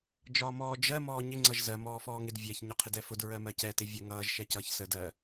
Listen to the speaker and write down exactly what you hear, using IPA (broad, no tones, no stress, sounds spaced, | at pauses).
d͡ʒ ɒː m ɔː d͡ʒ ɜ m ɔː ɲ ɪ ŋ͡ǀ ʌ ʒ z ɜ m ɔː f ɔː ŋ ɪ d vʲ ɛ ç ɲ ɒ qʰ ɪ d ɛ f ʊ d ɹ ɜ m ɜ c ɛ t ɪ vʲ ə ŋ ʌː ʒ ʃ ɛ c ʌː ç s ə d ɜ